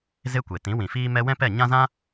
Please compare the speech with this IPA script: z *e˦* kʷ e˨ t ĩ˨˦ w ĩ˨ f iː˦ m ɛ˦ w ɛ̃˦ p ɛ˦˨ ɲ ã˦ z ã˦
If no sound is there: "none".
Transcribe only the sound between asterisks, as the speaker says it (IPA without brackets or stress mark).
e˦